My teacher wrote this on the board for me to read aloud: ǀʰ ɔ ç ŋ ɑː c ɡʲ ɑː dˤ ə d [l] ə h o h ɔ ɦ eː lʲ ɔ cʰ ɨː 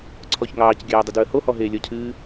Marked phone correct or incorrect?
incorrect